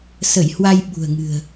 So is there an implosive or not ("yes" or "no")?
yes